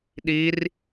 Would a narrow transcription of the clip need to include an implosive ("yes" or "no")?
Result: yes